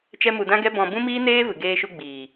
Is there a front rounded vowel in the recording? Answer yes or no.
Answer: no